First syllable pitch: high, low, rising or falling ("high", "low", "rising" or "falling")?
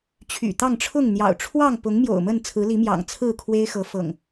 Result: low